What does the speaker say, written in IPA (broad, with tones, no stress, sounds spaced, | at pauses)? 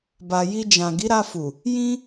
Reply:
b a˨ j i˧ d͡ʒ ã˨ ɡ i˨˦ ɾ a˧ f u˨ | j ĩ˦